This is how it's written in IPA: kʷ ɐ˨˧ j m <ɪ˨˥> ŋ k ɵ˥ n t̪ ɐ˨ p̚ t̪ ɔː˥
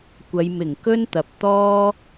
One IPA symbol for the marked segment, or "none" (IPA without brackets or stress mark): ɪ˨˩